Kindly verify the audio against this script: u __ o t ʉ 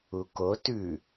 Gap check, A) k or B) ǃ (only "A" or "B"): A